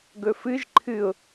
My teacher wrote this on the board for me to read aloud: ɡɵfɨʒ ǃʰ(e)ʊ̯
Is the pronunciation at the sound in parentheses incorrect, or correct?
incorrect